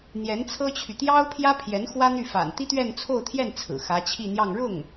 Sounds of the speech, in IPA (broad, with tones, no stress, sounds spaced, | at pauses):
n̪ j ɛ˧˥ n t͡sʰ ɤ˥ t͡ɕʰ y˨ t̪ j ɑ˥ ʊ̯ pʰ j ä˥ pʰ j ɛ˧˥ n x w ä˥ n̪ y˥˩ f a̰˨˩ n t̪ i˥ t̪ ɥ ɛ˥˧ n t͡sʰ o˥˧ ʊ̯ t̪ʰ j ɛ˥˩ n t͡sʰ ɹ̩˨˩ x ä˧˥ t͡ɕʰ i˥˧ n̪ j ɑ˥˧ ŋ ɻ ʊ˥˩ ŋ